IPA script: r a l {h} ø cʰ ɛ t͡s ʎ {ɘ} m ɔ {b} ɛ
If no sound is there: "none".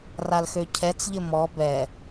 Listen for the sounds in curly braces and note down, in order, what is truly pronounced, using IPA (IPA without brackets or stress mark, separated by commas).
x, ɘ, b